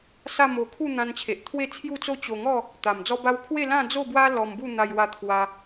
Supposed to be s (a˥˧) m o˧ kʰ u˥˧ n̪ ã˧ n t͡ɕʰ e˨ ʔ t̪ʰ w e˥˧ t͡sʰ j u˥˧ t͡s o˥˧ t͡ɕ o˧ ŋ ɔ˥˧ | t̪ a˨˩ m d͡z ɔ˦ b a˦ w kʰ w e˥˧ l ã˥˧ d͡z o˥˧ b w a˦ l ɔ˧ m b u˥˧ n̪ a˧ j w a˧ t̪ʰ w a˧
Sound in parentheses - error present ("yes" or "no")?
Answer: no